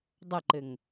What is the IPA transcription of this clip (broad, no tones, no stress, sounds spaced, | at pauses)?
dˤ ʌ ǃ ɘ ŋ